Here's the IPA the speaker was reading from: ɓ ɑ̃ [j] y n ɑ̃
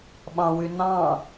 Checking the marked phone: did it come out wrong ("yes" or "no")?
yes